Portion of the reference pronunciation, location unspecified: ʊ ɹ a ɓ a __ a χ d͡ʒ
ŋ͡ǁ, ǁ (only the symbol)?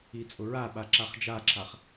ǁ